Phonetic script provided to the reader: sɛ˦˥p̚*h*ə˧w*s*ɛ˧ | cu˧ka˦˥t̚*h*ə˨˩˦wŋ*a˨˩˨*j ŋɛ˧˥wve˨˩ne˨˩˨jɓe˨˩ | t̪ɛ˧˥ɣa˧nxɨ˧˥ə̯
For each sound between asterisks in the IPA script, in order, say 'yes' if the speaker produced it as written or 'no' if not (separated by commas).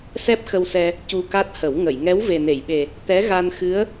no, yes, yes, no